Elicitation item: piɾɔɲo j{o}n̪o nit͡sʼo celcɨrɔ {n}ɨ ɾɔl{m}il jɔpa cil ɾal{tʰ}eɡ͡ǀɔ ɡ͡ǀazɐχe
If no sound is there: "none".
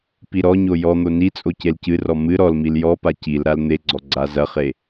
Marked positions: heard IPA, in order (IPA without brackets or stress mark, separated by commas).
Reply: ɔ, m, m, n̪